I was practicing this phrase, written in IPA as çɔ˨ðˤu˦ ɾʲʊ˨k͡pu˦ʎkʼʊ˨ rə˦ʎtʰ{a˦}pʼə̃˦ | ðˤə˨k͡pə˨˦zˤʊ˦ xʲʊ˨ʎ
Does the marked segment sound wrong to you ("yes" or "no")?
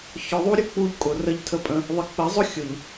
yes